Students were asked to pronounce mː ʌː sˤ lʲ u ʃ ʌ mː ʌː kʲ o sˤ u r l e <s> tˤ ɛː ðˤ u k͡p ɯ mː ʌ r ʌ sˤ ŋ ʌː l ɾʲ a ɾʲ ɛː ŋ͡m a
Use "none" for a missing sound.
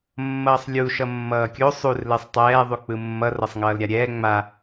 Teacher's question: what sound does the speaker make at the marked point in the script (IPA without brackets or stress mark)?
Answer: sˤ